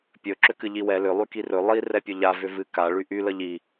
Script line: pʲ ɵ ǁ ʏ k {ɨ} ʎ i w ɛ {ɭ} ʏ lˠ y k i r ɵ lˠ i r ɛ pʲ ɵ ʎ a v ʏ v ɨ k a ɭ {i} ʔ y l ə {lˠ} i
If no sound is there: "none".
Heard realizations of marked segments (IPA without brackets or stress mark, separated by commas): ɨ, l, y, ʎ